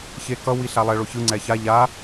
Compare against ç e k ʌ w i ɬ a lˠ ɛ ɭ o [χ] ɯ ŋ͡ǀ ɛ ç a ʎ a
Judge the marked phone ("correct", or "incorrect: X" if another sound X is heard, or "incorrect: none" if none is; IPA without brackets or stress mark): incorrect: ç